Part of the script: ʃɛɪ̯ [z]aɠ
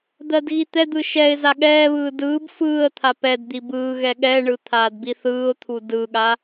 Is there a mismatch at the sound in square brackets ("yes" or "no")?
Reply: no